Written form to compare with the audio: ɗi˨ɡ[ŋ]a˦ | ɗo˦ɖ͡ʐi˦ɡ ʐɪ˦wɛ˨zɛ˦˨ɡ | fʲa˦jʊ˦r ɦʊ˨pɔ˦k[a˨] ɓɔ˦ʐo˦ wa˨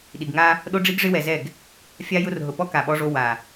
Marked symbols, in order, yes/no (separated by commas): yes, yes